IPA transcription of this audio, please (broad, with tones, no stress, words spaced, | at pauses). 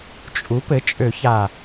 t͡ʃʼu˩˥pɘ˩˥ t͡ʃʼø˨˩˦ça˨˩